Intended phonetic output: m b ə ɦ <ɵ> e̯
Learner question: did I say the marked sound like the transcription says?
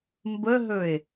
yes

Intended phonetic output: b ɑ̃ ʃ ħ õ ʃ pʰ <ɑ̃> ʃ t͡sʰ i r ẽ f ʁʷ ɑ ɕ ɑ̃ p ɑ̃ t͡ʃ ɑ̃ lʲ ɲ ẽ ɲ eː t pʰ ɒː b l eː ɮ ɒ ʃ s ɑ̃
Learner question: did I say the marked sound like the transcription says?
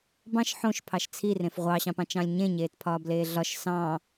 no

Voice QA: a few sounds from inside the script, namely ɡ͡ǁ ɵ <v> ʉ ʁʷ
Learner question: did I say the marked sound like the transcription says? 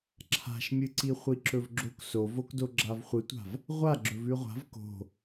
yes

